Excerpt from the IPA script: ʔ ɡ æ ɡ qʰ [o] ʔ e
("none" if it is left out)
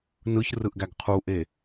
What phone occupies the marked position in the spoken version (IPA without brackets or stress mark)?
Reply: u